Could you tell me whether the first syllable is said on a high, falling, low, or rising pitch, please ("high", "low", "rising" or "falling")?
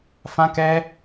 high